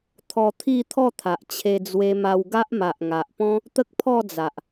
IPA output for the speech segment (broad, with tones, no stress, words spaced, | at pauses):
t̪ʰɔ˧t̪ʰi˥˧t̪ʰɔ˥˧ t̪ʰa˨ʔt͡ɕʰe˧d͡zwe˧ma˧w ɡa˦ʔma˨ʔŋa˨ʔpɔ̃˦ | t̪ə˦k̚pʰɔ˥˧d͡za˨ʔ